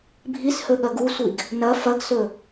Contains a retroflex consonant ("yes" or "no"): no